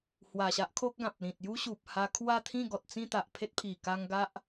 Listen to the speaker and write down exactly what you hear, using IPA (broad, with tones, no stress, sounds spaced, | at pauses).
h w a˨˩ ɕ a˦ ʔ kʰ o˦ k̚ ɡ ã˨ p̚ l ĩ˨ t̚ j u˦ ɕ u˨ p̚ h a˧ kʰ w a˥˧ t̪ʰ ĩ˥˧ ɡ ɔ˨ t̚ t͡s ĩ˥˧ t̪ a˨ ʔ pʰ e˦ t̚ pʰ i˨˩ k a˦ ŋ ɡ a˦ ʔ